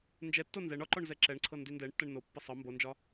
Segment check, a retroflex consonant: present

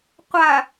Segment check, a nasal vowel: absent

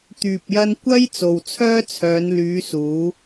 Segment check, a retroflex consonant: absent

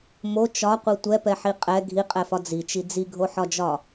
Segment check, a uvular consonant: present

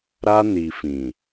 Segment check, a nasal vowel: present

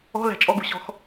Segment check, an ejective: present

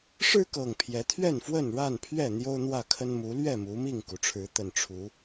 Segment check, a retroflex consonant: present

